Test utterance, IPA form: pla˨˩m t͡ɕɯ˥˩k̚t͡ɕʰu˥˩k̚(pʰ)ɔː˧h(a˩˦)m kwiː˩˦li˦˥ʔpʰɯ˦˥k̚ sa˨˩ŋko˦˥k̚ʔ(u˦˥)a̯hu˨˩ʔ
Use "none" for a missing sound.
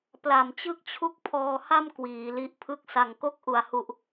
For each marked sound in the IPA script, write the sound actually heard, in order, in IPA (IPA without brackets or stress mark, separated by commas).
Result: pʰ, a˥˩, u˨˩